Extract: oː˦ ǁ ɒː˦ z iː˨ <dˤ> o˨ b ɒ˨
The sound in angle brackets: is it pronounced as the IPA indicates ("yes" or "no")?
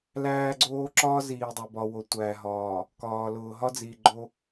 yes